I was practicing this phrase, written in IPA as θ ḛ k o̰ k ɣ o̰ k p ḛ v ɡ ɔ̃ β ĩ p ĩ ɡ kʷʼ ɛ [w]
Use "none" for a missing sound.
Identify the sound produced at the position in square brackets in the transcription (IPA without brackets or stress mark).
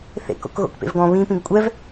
v